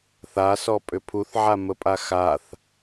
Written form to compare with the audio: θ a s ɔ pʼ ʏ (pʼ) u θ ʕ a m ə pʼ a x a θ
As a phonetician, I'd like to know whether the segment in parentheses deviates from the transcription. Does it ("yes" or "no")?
yes